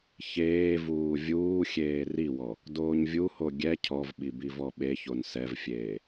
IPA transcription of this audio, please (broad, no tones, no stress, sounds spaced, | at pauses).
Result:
ç eː v uː vʲ uː xʲ eː r i w ɔ | d oː ɲ vʲ u h o ɡʲ ɛ cʰ ɔ v ɓ i b i v ɔ ɓ e ç o n s ɛ v fʲ eː